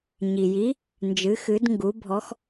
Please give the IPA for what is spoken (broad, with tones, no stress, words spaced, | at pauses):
ɲi˨ji˧˥ | nd͡ʒɨ˧˥xɨ˧˥dŋɡu˧˥ bʱɔ˧˥x